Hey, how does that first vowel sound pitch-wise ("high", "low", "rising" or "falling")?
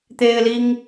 high